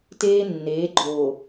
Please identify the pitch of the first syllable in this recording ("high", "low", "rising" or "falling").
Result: high